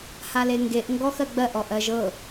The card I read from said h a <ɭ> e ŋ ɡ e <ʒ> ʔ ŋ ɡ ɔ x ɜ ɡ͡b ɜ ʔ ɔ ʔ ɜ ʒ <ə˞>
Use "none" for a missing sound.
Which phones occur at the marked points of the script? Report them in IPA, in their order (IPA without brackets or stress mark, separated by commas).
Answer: l, none, ɤ